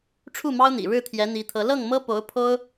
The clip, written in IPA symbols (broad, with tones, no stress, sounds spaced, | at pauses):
ʈ͡ʂʰ u˥˩ m ɑ˥ ʊ̯ n̪ ḭ˨˩ ɻ ɻ̩˥˩ t̪ʰ j ɛ˧˥ n̪ i˧˥ t̪ʰ ɤ˧˥ l ɤ˥˩ ŋ m ɤ˥ p o˧˥ ʊ̯ pʰ o˥ ʊ̯